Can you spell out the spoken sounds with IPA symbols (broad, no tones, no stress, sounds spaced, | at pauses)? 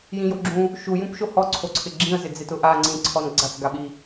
j ĩ j o ɡ͡ǁ ũ | ʃ u j ũ p ʃ o h ɔ ǀʰ o ǀʰ ɪ ɡ͡ǁ ĩ ə̯ z ɪ d͡z e t ʊ ʔ a ŋ͡ǀ ĩ ǀʰ ɔ n ɡ͡ǀ a t͡s ɡ a ɓ i